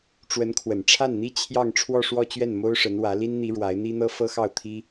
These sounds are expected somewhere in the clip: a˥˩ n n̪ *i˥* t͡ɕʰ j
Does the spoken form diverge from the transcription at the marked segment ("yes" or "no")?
no